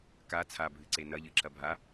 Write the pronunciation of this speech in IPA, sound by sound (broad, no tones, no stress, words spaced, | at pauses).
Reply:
ka t͡sʰabʱɨǀe nɐʎɨǁɐ bʱa